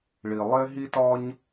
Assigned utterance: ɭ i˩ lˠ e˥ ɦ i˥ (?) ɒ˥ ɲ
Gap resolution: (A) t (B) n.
A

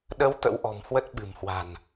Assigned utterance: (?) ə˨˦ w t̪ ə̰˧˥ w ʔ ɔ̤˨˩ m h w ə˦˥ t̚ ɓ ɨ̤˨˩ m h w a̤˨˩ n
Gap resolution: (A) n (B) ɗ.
B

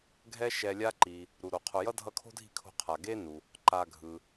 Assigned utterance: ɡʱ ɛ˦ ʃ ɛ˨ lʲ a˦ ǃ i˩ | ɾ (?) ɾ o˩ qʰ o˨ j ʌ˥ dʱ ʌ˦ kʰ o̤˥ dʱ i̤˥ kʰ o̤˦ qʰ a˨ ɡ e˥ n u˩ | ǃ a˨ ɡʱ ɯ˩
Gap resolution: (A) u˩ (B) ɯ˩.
A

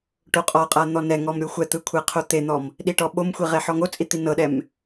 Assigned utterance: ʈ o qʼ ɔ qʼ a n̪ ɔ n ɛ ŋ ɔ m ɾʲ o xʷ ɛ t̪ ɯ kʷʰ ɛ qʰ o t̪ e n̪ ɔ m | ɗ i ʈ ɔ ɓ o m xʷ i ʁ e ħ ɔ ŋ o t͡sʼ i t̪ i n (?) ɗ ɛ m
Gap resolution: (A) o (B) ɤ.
B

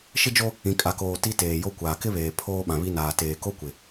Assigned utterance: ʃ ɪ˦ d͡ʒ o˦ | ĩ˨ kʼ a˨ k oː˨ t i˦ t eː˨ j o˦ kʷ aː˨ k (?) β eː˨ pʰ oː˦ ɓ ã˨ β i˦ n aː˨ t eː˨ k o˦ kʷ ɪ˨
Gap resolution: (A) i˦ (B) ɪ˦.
B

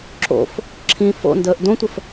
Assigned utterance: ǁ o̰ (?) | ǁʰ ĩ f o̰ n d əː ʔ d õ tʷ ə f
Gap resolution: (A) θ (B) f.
B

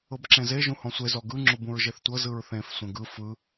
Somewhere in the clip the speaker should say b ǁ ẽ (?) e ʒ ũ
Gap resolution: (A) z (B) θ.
A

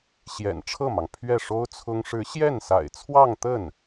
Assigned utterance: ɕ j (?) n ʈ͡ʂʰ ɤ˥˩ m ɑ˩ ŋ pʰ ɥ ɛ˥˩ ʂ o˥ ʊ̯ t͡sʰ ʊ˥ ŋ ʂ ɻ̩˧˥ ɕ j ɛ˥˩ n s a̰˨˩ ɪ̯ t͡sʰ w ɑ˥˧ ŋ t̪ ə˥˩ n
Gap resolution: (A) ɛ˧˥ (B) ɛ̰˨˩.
B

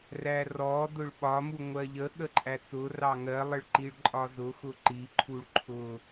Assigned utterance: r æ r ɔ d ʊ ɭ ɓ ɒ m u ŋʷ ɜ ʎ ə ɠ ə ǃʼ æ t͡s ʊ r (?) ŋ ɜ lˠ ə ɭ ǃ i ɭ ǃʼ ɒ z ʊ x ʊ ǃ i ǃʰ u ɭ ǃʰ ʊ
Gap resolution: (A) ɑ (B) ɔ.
A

